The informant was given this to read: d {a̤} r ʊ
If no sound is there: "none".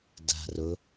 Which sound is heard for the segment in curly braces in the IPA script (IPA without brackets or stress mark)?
a̤